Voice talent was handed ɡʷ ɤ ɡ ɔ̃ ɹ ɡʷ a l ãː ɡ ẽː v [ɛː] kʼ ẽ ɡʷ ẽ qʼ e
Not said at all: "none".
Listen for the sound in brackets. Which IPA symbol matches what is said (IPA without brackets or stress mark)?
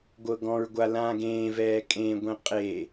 ɛː